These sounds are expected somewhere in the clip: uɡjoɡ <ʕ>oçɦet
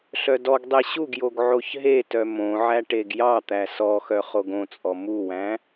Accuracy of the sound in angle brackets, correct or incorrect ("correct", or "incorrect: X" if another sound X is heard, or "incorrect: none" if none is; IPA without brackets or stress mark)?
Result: correct